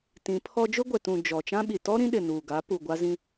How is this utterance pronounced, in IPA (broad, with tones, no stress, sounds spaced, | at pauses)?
t ĩ˨˦ pʰ ɔ˦ d͡ʒ ʊ˦ ɡʷ ɛ˨ t ũ˨ d͡ʒ ɔ˨ t͡ʃ ã˦ ɓ i˨ t ɔ˦ ɾ ĩ˦ ɗ ɪ˨ n uː˨ ɡ a˨˦ p u˨ ɡʷ a˦ z ĩ˦